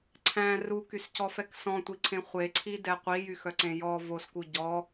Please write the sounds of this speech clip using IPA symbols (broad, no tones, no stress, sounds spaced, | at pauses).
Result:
ǀʰ æ̃ r u k y s c ɔ f ɛ k s ɔ̃ tʷ i ǀʰ ẽ χʷ e ǀʰ i d ɛ qʷ i j y x œ ǀ ẽ j ɔ v o s k u ɟ ɔ